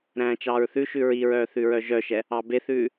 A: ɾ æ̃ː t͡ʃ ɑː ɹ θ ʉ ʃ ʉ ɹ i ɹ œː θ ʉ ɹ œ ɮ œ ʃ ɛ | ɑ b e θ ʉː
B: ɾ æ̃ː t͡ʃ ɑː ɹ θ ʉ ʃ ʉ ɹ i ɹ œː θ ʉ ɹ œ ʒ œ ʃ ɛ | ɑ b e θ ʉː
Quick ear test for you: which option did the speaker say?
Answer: B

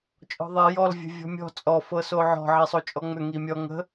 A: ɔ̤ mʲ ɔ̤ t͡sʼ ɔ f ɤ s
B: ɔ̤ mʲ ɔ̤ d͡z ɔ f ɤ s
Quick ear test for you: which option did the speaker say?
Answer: A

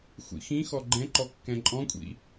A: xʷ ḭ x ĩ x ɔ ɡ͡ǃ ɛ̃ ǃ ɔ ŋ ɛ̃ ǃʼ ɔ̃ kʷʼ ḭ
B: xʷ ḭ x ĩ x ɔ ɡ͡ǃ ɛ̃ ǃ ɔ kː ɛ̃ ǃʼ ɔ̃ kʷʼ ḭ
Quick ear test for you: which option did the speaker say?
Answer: B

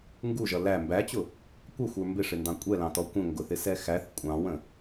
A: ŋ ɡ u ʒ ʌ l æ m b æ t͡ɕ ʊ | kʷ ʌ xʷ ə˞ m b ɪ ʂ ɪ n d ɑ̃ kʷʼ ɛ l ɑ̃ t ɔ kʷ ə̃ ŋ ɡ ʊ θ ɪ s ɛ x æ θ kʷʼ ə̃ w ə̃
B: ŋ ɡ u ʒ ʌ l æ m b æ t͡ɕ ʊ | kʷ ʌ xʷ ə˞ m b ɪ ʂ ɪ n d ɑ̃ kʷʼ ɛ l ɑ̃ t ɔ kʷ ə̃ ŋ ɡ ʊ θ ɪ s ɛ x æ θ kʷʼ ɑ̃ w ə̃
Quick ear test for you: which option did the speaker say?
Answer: B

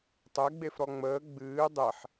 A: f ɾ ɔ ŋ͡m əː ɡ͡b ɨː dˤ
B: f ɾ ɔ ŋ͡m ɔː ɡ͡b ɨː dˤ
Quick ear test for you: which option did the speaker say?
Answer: A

